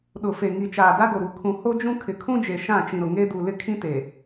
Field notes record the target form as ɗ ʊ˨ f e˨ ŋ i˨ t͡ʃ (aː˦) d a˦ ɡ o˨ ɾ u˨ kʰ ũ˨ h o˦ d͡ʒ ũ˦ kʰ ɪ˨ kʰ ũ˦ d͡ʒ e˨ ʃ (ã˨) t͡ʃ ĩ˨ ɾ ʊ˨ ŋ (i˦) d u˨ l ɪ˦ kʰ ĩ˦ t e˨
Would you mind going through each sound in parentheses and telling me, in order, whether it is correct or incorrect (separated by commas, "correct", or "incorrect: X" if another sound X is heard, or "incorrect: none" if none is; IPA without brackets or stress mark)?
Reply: incorrect: aː˨, incorrect: ã˦˨, incorrect: e˦